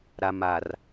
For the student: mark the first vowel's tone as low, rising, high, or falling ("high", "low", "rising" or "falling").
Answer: low